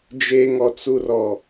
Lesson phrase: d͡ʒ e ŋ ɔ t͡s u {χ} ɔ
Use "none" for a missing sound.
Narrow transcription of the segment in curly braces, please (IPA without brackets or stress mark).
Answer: r